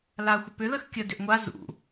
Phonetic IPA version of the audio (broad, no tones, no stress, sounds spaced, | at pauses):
l aː xʷ ə p ʏ ð ə x kʲ ə d ʏ ʔ ŋʷ a z ṵ